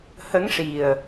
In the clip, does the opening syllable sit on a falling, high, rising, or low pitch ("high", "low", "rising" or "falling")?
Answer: rising